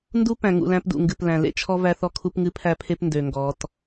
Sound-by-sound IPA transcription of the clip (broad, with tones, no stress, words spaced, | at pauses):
ndu˦pæ̃˨ ŋṵ˨læ̃˦pdṵ˨ ŋɡɨ˨plæ̃˨ lḛ˦t͡ʃʰɔ˦ væ˦θɔ˦kʰu˦pŋɨ˦ pʰæ˦pʰe˦p ndø˨ŋɡɔ˨˦t